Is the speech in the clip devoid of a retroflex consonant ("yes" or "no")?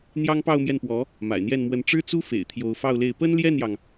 no